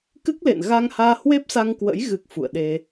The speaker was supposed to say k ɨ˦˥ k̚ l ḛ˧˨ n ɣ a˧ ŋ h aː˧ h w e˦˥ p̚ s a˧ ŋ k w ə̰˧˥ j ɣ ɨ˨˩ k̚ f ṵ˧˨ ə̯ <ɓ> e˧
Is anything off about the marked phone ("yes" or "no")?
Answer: yes